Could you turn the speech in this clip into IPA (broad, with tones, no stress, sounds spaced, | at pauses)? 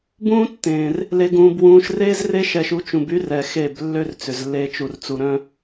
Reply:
b ũː˦ tː ẽː˨ r | l e˧ ɡ ũː˧ b w ũː˧ ʃ r eː˦ z r e˦ ʃ ɛ˧ ʃ u˧ t͡ʃ ũ˨ b y˨˦ r ɛ˧ x e˦˨ b lː ø˦ r t͡s ʏ˨ z lː eː˧ t͡ʃ u˨ r t͡s u˨ ɾ œ̃˧